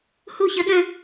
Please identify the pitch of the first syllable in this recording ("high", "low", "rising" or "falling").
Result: falling